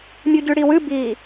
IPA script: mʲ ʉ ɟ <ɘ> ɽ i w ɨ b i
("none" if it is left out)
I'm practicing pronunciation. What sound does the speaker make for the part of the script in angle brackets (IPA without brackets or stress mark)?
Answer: ʉ